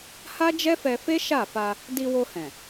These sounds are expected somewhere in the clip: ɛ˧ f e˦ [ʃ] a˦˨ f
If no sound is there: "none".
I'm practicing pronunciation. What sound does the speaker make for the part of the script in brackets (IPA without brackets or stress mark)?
ʃ